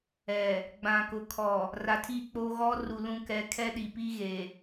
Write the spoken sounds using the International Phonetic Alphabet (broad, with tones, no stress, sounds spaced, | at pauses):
ɛ˨ | ɡ͡b ã˨ k ʊ˨ kʰ ɔ˨ | r a˨ tʰ i˦˨ k͡p oː˦ ɣ ɔ˦ r u˨ l ũ˦ k ɛ˦ kʰ ɛ˦ ɗ i˨ p i˦ ɣ eː˨